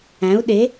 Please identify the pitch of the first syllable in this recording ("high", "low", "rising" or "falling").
rising